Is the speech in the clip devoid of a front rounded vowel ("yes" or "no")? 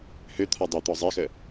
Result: no